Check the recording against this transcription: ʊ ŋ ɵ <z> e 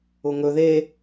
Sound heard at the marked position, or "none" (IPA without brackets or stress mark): ð